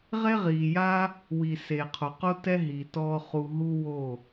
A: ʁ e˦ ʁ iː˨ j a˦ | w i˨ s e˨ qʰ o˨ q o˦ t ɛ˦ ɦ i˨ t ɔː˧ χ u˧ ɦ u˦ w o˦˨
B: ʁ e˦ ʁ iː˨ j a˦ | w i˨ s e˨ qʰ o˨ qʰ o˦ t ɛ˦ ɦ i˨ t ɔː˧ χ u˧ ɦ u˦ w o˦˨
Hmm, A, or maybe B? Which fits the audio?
A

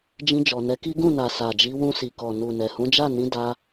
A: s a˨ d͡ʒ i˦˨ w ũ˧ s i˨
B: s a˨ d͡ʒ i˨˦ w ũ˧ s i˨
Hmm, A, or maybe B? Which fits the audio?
B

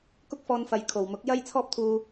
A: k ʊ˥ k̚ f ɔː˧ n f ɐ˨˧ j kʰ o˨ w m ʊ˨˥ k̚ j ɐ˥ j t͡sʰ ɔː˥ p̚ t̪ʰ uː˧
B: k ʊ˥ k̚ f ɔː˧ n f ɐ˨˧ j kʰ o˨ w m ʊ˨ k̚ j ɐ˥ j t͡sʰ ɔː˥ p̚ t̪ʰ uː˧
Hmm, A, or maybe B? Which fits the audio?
A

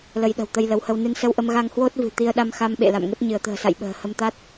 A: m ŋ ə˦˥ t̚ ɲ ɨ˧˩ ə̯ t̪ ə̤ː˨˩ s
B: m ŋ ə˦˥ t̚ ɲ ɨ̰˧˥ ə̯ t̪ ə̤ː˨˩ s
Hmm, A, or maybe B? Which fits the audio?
A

